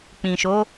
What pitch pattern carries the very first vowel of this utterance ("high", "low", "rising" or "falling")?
low